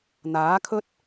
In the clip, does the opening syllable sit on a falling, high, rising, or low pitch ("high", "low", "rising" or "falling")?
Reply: rising